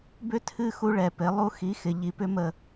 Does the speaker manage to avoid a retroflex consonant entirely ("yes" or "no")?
no